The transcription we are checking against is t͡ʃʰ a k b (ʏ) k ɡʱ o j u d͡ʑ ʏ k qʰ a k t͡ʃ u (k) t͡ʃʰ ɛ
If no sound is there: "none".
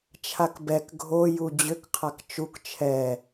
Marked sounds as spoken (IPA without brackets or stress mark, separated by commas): ɛ, k